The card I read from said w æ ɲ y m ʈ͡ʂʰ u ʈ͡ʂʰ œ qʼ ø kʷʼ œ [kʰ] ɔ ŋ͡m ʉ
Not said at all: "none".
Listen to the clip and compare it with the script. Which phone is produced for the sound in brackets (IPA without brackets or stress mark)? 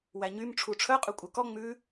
k